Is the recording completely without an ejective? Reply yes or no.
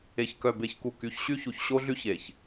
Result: yes